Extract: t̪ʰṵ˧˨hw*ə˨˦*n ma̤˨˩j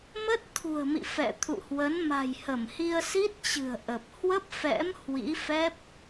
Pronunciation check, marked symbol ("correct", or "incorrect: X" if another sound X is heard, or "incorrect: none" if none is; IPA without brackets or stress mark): correct